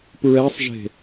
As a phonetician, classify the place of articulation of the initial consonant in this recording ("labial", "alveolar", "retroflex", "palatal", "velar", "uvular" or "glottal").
labial